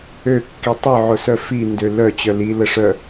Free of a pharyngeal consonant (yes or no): no